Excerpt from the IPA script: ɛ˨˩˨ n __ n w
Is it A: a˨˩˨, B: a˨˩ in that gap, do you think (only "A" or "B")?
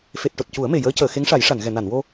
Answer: A